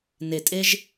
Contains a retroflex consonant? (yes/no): no